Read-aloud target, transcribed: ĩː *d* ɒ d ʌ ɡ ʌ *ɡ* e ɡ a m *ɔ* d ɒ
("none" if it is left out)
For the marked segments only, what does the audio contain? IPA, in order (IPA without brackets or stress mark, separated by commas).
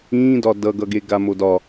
d, ɡ, o